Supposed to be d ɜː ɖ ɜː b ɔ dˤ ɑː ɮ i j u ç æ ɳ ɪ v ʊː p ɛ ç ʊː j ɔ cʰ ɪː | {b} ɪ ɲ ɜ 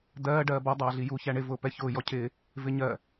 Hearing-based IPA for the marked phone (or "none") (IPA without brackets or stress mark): v